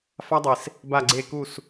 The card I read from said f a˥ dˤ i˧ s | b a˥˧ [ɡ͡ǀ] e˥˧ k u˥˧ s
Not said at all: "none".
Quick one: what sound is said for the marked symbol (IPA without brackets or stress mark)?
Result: ɡ͡ǀ